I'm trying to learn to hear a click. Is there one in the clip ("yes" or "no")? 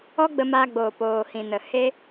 no